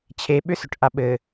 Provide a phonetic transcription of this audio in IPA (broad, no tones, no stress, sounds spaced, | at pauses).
t͡ɕʰ e ɓ ʏ s ʏ ʈ ʔ a ɓ ɘ